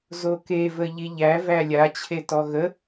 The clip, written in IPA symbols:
z o k e v ə ʎ i ʎ æ v æ lʲ a t͡ɕʰ e t ɔ ɣ ə

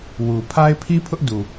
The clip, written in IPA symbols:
w u˨ pʰ a˦ ɪ̯ pʰ i˦ pʰ ʊ˦ ʔ d u˨

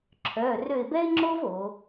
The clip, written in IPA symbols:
ǁʰ œː˩˧˩ r ø˦˨ ɪ̯ b ɛ˥ ɪ̯ ŋ͡ǁ o˥ v o˩˧

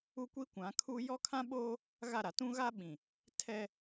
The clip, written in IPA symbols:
u˦ kʷ i˦ kʷ ã˨˦ kʰ u˦ j ɔ˦ kʰ ã˦ ɓ oː˦ | ɣ a˦˨ ɾ a˨ t ũ˦ ɣ a˦ ɓ ĩ˨ | tʰ ɛ˦

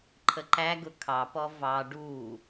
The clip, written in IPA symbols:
ǃʰ ə ǃ æ ɡ ʊ kʰ ɑ p ɔ v ɑ ɖ u

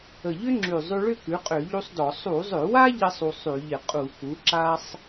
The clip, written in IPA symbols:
ə˨˩ ʎ ʏ˥ ŋ͡ǁ ʉ˨˩ zˤ ʉ˧ ɭ ʏ˥˧ k ʉ˩˥ qʼ ø˧˩˧ ʎ u˥ sˤ d ɔ˧˩˧ sˤ u˧˩˧ zˤ ʏ˧˩˧ w a˥ ʎ ɪ˥ sˤ u˧ sˤ ʉ˧˩˧ ʎ ɪ˧˩˧ qʼ u˧˩˧ k u˩˥ ǁ a˥ sˤ

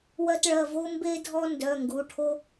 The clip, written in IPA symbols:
w ɜ˦ t ɭ ɜ˩˧˩ v o˦ m b e˦ dʱ ɔ˦ n d œ˩˧˩ ŋ ɡ u˩˧˩ ʈʰ o˦

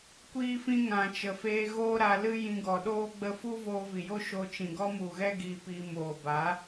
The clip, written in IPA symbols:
kʷ iː˦ f ĩ˦ ŋ ã˧ t͡ʃ ə˨ f eː˧ ɣ oː˦ ɾ a˧ l ɨ˦ j ĩ˧ ɡ ɔ˨ ɗ oː˦ ɡ͡b ə˧ f u˦ v oː˧ v i˨ j o˦ ʃ o˧ t͡ʃ ĩ˨ ɡ ɔ˦ m u˨ ɣ ɛ˦ ɡ iː˧ p iː˧ m oː˨ b a˨˦

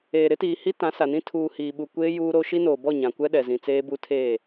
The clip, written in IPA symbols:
eː˨ ɾ ɪ˦ t iː˨ h i˦ t ã˨˦ s a˨ n ĩ˦ tʰ uː˨ h iː˨ ɓ u˨ kʷ eː˦ j uː˦ ɾ o˦ ʃ i˦ n oː˨ b ɔ˦˨ ɲ ã˨ kʷ ɛ˦ ɗ ɛ˨ z ĩ˨ t͡s eː˦ b u˦ tʰ eː˦˨

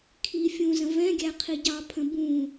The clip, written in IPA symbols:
kʰ i fʲ ũ z ə̃ v ɛ̃ ɡʲ æ qʰ i ɟ ɑ pʰ ə̃ b ũ

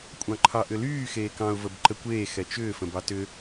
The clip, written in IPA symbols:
kʷʼ ɑ̃ ǃʰ ɑ ʔ ʏ l yː x eː k ɑ̃ ʊ̯ v ə b ǃ ə kʷ eː x ɛ t͡ʃ ʏː f ə̃ b ɑ t ʏ

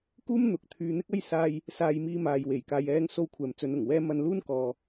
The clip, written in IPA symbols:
k uː˥ m n̪ ʊ˨˥ k̚ t̪ʰ yː˧ n̪ ɪ˥ k̚ ɐ˥ j s aː˧ j | s aː˧ j m iː˧ m aː˨ j w e˨˩ j k aː˨ j ɛː˧ ŋ s o˧ w kʷʰ ɛː˨ m t͡s ɵ˨˧ n ʊ˨˩ ŋ w ɛː˥ m ɐ˧ n l uː˥ n k ɔː˨

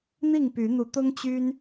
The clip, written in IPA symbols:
n̪ i˥˨ ŋ p y˨˦ n̪ u˨˦ t̪ ʊ˦ ŋ t͡ɕ y˦ n

